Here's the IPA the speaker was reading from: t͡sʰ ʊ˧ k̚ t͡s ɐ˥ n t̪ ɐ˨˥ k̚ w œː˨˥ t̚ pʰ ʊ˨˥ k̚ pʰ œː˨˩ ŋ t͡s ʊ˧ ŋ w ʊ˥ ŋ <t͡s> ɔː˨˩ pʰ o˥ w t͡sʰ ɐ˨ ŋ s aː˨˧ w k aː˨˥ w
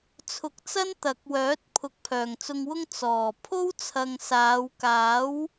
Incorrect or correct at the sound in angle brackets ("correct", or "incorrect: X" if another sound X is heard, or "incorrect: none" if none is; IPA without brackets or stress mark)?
correct